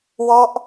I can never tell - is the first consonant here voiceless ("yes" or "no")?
no